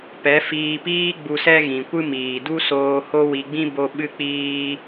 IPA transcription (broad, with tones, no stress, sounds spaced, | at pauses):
p ɛ˨˦ f iː˧ p iː˦ ɡ͡b u˧ s ɛ˦ ɣ ĩ˨ kʷ ɨ˦ m iː˨ d u˦ s oː˧ h o˦ w i˧ ɡ͡b ĩ˦ b o˦ ɓ ɨ˦ k͡p iː˦